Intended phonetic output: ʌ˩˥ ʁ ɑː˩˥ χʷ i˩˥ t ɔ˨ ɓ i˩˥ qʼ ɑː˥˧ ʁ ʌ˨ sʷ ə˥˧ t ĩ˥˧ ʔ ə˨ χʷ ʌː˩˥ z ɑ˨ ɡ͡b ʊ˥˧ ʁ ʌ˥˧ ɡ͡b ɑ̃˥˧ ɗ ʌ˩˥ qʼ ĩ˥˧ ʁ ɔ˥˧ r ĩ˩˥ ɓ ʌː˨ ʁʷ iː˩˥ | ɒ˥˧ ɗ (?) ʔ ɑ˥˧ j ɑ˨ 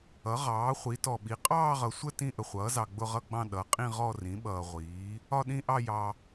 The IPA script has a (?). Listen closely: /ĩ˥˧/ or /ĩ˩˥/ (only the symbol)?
ĩ˥˧